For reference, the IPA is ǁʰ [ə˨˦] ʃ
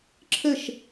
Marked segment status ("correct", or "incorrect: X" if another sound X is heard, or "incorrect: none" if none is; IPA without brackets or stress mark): incorrect: ə˦˨